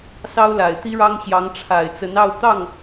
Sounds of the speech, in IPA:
s ɑ˥ ʊ̯ l a˨˩ ɪ̯ t̪ i˥ ɻ ɑ˥ ŋ ɕ j ɑ˧˥ ŋ ʈ͡ʂʰ a˨˩ ɪ̯ t͡s ə˧˥ n ɑ˥˧ ʊ̯ t̪ ɑ˥˩ ŋ

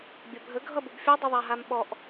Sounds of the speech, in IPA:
bʲ ɐ bʱ ə ɡʱ ʌ b u b fʲ o dˤ ə ðˤ a ɦ a m ɓ ɔ ʔ

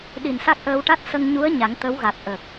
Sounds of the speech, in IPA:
ɗ i˨˩ n s a˦˥ k̚ ʔ əː˧ w ʈ a˦˥ t̚ s ə˧ ŋ ɲ u˧˥ ə̯ ɲ a˨˩˦ ŋ t̪ ə˧˥ w ɣ a˨˩ t̚ ʔ ə˨˩ k̚

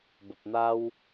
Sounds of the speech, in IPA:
b ə˨ p̚ n̪ a˦ w

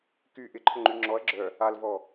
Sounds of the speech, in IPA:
k y ʔ ɪ ǃʰ ʊ ŋ͡ǃ y ŋ͡ǁ ɔ ɐ̯ ɡ͡ǁ œ | a l v ɔ

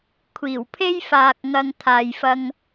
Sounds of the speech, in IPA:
kʷʰ iː˨˩ w pʰ e˥ j f aː˨ k̚ ŋ ɐ˧ ŋ t̪ʰ aː˨ j f ɐ˧ ŋ

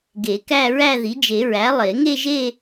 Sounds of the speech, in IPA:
ɡ e˨˩˦ k æ˥˧ ɹ æ˥˧ ð i˩˥ d͡ʒ e˨˩˦ ɹ æ˩˥ lˠ e˨˩˦ ŋ e˥˧ ʒ e˥˧

